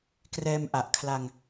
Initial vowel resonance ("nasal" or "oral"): oral